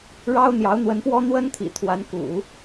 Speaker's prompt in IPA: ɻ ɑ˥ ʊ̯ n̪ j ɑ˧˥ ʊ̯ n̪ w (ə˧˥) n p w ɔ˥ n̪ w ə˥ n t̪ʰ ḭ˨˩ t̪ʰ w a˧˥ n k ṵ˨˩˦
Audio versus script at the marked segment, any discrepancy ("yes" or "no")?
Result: no